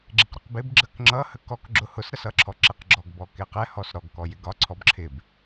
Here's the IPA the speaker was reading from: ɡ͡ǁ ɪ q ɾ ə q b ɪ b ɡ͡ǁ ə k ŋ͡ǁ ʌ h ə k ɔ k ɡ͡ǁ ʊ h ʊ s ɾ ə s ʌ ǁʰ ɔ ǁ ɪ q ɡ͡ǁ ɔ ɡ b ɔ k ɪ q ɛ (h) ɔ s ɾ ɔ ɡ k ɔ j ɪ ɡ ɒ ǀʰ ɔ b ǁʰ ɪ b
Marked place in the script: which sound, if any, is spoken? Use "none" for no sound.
h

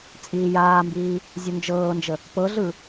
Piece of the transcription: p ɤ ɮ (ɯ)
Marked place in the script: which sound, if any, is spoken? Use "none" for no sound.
ɯ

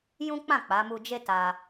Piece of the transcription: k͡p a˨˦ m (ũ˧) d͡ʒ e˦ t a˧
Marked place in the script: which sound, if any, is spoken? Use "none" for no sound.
u˧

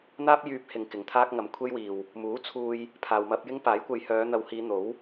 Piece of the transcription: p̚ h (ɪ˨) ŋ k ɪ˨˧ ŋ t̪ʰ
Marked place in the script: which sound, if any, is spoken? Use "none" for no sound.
ɪ˨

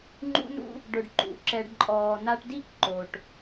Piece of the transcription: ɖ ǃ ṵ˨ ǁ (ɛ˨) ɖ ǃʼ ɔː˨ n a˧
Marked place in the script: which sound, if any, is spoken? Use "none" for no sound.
ɛ˨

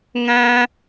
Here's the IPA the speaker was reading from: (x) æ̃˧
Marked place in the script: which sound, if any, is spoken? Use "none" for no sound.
ŋ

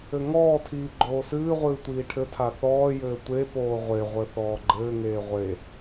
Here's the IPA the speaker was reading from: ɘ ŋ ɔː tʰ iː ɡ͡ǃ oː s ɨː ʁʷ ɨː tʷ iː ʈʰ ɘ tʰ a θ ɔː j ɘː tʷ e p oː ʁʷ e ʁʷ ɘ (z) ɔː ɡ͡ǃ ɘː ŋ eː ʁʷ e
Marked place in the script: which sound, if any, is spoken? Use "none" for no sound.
θ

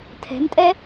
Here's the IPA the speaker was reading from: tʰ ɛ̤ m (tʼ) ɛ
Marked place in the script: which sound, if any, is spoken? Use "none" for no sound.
tʼ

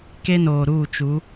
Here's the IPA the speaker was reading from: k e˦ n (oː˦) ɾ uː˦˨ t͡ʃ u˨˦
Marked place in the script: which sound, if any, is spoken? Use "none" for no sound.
oː˨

